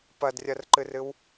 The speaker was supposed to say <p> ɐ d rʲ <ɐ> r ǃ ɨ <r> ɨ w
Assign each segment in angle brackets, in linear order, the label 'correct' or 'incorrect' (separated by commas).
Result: correct, correct, correct